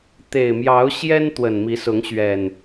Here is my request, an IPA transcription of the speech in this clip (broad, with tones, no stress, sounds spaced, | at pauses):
t̪ e˨˩ ɪ̯ m j ɑ˨˦ ʊ̯ ɕ j ɛ˦ n t̪ w ə˨˩ n m i˨˦ s ʊ˨˦ ŋ ɕ ɥ ɛ˨˩ n